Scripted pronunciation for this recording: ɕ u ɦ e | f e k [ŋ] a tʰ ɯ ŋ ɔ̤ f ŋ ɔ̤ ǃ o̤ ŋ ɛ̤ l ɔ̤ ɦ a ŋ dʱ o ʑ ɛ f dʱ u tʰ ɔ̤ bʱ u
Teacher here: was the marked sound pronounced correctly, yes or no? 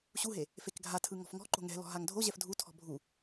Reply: no